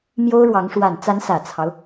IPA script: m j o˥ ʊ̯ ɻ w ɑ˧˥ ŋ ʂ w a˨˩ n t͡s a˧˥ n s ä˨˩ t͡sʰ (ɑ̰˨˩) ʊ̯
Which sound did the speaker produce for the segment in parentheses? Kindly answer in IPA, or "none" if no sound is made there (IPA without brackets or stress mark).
ɑ˦